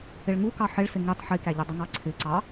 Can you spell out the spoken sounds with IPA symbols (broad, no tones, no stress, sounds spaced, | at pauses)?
ɪ ɭ ŋ u k ɑ ħ ɪ ɭ s ɪ ŋ i tˤ ħ i k æ ʎ ɪ dˤ ɪ ŋ ɑ ǀʰ ɪ ǀ ɑ